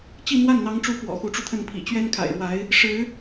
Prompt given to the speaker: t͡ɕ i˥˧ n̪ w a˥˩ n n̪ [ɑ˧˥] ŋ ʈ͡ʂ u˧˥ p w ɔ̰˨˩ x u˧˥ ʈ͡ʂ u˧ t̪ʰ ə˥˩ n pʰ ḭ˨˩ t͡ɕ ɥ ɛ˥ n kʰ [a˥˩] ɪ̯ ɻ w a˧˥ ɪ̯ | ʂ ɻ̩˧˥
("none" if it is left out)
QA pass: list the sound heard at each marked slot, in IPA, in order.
ɑ˧˥, a̰˨˩

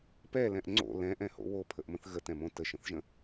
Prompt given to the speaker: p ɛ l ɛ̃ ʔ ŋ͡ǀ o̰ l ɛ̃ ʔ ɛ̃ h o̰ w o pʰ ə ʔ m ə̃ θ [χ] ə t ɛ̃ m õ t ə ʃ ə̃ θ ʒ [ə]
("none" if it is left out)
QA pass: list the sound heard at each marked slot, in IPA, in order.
ɣ, ə̃

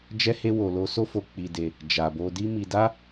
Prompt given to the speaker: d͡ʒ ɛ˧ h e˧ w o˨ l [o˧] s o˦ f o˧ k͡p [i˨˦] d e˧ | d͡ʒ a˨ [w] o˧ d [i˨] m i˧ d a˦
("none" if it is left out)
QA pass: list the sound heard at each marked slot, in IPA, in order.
o˧, i˧, b, i˦

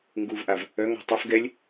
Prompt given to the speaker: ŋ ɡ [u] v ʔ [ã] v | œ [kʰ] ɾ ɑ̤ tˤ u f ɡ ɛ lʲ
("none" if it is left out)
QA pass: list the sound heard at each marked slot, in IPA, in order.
u, a, ŋ

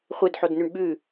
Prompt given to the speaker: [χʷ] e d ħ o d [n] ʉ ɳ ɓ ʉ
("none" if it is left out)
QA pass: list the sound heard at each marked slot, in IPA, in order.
χʷ, n

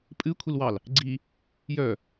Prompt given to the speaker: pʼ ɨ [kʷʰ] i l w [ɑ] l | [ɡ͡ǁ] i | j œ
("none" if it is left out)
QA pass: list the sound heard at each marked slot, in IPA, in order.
kʷʰ, ɑ, ɡ͡ǀ

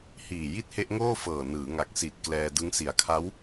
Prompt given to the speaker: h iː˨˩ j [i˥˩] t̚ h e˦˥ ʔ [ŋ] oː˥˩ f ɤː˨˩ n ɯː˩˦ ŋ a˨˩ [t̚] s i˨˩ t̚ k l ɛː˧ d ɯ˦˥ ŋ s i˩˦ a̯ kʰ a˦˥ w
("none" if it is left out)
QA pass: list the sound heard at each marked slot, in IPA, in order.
i˥˩, ŋ, k̚

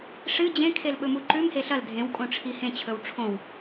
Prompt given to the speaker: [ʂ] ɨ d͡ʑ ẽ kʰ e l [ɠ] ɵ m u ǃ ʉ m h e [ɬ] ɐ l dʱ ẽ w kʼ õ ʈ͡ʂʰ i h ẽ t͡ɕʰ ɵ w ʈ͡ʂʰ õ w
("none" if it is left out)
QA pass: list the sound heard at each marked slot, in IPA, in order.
ʂ, ɓ, ɬ

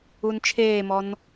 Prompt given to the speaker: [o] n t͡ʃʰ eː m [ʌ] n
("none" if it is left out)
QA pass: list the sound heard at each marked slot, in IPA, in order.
u, ɔ

